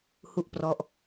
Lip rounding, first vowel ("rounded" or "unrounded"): rounded